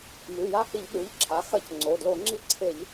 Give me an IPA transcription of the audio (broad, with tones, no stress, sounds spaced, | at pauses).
m ʉ˩˧˩ j a˦˨ h i˧˩˧ ʎ ɗ ʉ˩˧˩ ʎ ǁʰ a˩˥ x ɐ˧˩˧ c ŋ͡ǀ o˩˧˩ d l o˧˩˧ ŋ͡ǁ i˦˨ ǀʰ e˧˩˧ ʎ